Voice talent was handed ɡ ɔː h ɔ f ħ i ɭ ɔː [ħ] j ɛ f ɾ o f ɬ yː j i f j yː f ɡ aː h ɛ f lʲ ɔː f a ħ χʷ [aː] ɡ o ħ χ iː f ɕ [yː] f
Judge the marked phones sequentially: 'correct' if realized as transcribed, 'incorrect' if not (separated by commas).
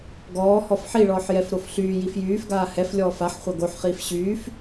correct, incorrect, correct